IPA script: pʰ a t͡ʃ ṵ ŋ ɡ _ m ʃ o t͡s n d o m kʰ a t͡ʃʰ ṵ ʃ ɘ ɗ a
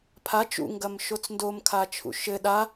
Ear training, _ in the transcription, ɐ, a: ɐ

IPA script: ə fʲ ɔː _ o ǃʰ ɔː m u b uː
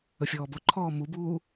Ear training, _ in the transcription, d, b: b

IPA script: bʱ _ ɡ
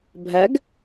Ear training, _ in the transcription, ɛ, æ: æ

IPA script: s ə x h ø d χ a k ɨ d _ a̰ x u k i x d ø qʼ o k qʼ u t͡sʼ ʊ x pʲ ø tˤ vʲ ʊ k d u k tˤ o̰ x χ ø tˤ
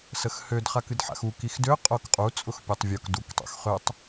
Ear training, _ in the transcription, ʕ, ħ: ħ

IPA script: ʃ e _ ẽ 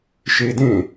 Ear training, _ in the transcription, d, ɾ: d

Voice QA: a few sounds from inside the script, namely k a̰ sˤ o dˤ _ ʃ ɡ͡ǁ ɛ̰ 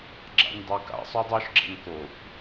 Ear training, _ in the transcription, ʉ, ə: ʉ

